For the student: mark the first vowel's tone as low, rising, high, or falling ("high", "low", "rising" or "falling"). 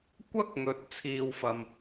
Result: high